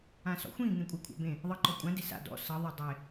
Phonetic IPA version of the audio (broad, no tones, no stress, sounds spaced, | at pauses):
ã s ɔ̰ xʷ ĩ ŋ ẽ kʷʼ ɜ kʷʰ a̰ b ẽ | ðˤ ɤ ǃ ɔ kʷʼ ã d e s a̰ d ɔ̰ s ɤ ðˤ ɜ dˤ e